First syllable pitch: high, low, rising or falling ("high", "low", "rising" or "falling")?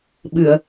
low